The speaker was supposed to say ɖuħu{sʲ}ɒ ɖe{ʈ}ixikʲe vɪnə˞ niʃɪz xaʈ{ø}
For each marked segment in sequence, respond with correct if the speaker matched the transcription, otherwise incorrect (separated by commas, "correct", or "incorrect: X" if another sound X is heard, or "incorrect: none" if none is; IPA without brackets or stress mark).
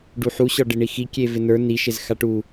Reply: incorrect: ɕ, incorrect: ɳ, incorrect: u